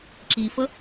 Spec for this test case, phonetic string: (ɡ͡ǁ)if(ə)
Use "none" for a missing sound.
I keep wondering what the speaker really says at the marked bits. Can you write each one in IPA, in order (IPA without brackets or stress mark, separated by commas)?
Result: ǁ, ə